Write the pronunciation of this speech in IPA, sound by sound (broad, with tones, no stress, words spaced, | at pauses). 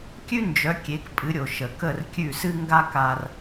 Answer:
kʲʉ˥nd͡ʒœ˩˥ kʲe˩˥kpʼɨ˩˥ɾʲo˩ ʃə˩ kə˥˩rkʲʉ˥˩sɨ˥ ŋɡa˥ka˧r